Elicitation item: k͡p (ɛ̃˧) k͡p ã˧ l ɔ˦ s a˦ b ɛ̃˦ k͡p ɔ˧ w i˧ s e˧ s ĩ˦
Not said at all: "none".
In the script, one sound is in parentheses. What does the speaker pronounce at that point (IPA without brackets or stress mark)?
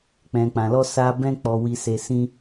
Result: ɛ̃˧